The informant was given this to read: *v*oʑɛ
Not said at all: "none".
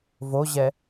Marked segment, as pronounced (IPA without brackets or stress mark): v